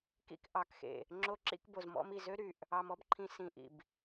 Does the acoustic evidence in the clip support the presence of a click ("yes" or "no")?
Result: yes